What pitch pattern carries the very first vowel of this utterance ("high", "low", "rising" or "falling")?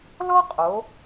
high